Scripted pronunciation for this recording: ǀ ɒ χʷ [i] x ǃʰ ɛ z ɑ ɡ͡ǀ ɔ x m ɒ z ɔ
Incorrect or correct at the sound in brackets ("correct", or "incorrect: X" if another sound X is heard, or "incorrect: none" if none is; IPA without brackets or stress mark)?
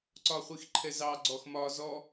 correct